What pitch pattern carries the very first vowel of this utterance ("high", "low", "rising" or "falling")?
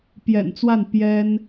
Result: low